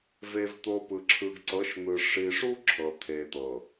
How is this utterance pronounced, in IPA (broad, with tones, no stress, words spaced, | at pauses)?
ve˨vt̪o˨ pɯ˨ǁʰɯ˨ɡǀɤ˨˦ʃn̪ɯ˨ ʂi˨ʂu˦ ǁʰɤ˨t̪ʰe˨t̪ɤ˨